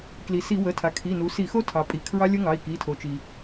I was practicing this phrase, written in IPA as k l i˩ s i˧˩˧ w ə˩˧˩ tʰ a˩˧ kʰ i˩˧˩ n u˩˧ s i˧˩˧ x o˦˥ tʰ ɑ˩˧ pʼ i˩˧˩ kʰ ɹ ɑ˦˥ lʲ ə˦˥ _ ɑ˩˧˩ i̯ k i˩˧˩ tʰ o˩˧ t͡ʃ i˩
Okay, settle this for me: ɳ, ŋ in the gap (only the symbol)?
ŋ